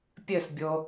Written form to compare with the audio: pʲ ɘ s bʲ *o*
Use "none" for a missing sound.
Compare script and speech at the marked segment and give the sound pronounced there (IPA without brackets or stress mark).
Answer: o